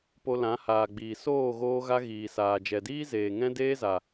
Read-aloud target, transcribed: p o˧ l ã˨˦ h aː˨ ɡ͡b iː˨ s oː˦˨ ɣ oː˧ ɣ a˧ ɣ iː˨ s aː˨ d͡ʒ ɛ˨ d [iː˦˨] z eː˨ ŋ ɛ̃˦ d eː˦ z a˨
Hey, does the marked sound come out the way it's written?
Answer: no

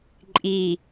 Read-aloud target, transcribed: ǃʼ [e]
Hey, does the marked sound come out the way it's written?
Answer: no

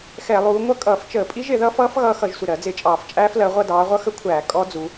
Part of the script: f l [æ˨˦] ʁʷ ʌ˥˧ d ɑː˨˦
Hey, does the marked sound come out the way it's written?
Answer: no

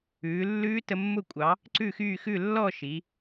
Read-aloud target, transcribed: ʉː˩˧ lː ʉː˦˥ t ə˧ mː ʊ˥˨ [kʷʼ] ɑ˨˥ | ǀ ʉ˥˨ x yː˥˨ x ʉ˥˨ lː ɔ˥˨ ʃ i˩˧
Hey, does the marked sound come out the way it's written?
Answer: yes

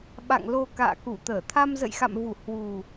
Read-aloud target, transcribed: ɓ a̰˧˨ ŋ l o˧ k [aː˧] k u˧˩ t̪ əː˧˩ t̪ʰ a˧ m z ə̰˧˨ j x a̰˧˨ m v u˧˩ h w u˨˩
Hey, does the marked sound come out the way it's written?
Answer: no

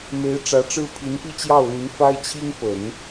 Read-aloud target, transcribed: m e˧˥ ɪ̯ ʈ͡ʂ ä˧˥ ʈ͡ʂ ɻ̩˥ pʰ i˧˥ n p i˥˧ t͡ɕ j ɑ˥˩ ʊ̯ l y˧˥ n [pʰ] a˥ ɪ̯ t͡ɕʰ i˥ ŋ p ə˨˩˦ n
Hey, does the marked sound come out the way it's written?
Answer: no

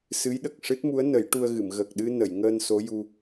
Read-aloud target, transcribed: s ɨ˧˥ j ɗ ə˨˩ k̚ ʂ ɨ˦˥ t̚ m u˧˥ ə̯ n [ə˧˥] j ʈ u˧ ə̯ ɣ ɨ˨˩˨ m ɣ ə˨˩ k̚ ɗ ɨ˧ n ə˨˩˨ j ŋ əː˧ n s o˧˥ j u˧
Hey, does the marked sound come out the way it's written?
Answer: no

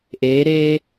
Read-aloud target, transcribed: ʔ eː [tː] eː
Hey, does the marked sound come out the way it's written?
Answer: no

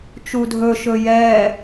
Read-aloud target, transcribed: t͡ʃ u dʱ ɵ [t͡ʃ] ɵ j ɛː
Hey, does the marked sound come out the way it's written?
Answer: no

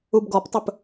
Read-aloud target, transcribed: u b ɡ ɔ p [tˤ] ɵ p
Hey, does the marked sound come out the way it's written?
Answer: yes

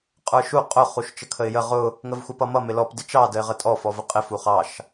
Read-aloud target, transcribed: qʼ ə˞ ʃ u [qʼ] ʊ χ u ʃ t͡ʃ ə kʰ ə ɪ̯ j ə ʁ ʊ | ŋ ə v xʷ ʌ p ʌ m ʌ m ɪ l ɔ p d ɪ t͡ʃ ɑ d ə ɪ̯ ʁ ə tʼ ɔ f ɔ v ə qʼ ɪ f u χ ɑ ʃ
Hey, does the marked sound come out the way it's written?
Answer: yes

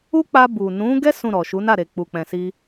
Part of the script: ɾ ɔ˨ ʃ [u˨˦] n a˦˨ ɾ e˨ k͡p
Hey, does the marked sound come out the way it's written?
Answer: yes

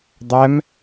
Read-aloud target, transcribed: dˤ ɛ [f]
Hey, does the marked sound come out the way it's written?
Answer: no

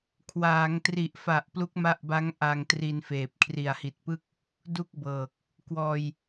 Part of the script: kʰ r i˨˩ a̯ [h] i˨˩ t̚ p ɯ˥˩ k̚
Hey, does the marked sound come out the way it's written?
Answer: yes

